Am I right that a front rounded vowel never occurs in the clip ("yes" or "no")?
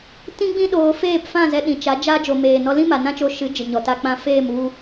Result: yes